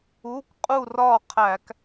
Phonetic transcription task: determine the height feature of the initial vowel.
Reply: high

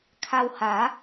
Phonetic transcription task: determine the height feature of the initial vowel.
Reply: low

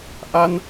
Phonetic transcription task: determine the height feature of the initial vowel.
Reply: low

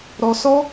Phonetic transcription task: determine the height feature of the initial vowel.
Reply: mid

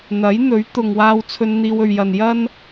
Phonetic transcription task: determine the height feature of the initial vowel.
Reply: low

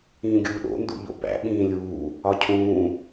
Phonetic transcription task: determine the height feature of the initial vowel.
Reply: high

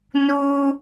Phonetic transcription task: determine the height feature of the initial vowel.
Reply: high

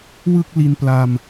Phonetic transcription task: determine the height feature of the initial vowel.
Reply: high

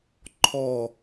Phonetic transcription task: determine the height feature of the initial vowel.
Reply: mid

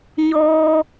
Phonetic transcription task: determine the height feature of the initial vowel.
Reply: mid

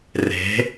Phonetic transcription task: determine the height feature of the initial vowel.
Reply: mid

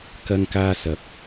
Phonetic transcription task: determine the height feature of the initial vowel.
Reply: low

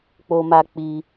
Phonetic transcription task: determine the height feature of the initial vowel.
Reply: mid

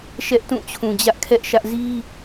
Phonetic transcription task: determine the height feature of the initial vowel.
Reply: mid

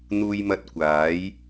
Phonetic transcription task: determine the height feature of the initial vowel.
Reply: high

